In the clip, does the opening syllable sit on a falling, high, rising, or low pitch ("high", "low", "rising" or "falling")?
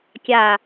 low